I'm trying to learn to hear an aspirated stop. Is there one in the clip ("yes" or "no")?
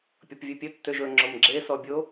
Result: no